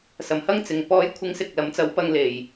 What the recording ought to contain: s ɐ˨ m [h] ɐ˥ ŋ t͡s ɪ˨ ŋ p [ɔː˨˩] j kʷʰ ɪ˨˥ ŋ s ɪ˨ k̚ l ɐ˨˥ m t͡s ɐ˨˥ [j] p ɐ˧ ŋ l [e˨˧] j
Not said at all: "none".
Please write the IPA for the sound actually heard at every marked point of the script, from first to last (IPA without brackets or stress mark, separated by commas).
h, ɔː˨˥, w, e˨